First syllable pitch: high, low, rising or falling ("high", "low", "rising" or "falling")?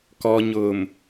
low